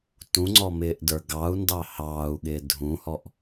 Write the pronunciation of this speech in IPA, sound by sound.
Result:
tũŋ͡ǀɔmɪːʔdə˞ ɡɑu̯ndɑ hɑːu̯ɠɪː dʱũhɔʔ

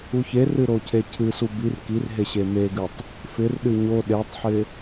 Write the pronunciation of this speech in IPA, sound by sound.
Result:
uçerɨ ɾocʰecʰɨsu bir kirɦe ɕemeɡɨtˤ | fɪrɗɨ ɲo ɗetˤħɪ

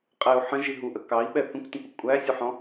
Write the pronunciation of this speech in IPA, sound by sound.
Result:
qʼɛu̯ ħə̃ʒi ɦuʔə kɑi̯ɓɛ θə̃kʷtə̃kʷə kʷʼæsʲuħɔ̃

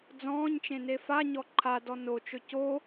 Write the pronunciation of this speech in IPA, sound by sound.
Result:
d͡zɔ̃ːɲt͡ʃẽne faɲɔ ǃʰadɔ not͡ʃɵ co

